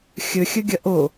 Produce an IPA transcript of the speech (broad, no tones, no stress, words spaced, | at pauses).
xʲɵxʲɵɡʲɐ ʔo